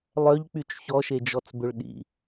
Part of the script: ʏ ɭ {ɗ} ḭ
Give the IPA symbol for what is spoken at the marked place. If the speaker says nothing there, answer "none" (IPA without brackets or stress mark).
ɗ